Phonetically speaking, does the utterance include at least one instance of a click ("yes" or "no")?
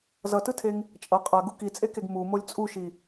no